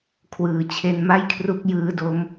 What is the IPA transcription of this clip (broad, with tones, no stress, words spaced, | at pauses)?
kʰwɯː˨˩t͡ɕʰe˧nma˥˩jkʰru˦˥k̚ jɯː˦˥ do˦˥m